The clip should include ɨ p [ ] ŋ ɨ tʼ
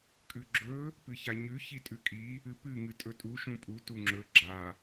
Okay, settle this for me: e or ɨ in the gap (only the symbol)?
ɨ